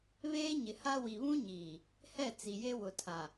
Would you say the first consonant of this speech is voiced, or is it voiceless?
voiced